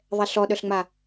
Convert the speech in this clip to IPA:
ðˤ ɛ ɬ ɔ ɗ œ ɬ ŋ͡m a

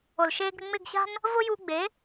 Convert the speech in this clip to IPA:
o˨ l ʃ eː˧ ɡ ɾ ɪ˧ ŋ͡m ɪ˦˨ ɡ ɕ a̤˦ n | v ʊː˦ j uː˧ ɡ͡b e˨˦

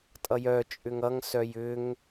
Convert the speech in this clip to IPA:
tʼ ʌ j œ t͡ʃʼ ʏ ŋ ʌ ŋ s œ j ʏ ŋ

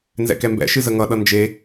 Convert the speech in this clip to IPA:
n z ɛ̰ k ɛ m b ɛ̰ ʃ ɨ z ə ŋ ʌ ɗ ʌ n d͡ʒ e

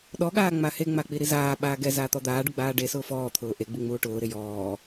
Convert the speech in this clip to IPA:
ɗ ɔ ɠ aː ŋ͡m a h e ŋ͡m a k͡p i ɾ i z aː ɓ aː ɡ ɛ z aː t̪ ɔ d̪ aː ɖ u ɡ͡b aː ɖ e s ʊː f ɔː t̪ʰ ʊː ʔ e ɡ͡b i ŋ͡m uː ʈ ʊː ɾ ɪ j ɔː

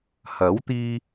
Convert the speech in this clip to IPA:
h ɐ˨˥ w t̪ iː˧

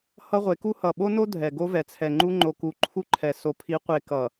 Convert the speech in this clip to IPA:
h ʌ˦ ʁʷ e˨˦ k u˦ h ʌ˨ ɓ o˦ n o˦ dʱ ɛ˨ ɡ o˦ v ɛ˨ t͡sʰ ɛ˨ ŋ͡ǃ u˦ ŋ͡ǃ o˦ k u˦ ǃʰ u˦ ǃʰ ɛ˨ s o˨ pʰ i˨˦ qʷ e˨ k ʌ˨

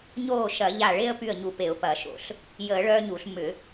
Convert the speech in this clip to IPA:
ɲ oː˧˩ ʃ ɐ˧˩˧ ʎ a˧˩ ɭ e˦ ə̯ p y˧˩ ə̯ ɲ u˧˩ p e˧˩˧ ʊ̯ p ɐː˧˩˧ ʃ o̰˧˩˧ ɬ | j əː˧˩˧ ɭ œː˦ ɲ u˧˩˧ ɬ m ʏ˧˩˧

